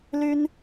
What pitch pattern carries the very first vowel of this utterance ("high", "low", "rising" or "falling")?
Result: high